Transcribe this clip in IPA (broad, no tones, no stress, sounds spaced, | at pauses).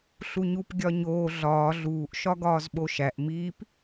ɬ u ɲ u p ɡʲ ɒ ɲ oː ɮ ɒː ɮ uː ʔ ʃ ɒ ɡ ɒː z ɓ o ʃ æ ʔ m i p